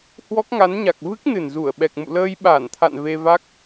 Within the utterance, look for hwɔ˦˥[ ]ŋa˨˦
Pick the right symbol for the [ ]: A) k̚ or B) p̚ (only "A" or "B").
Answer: A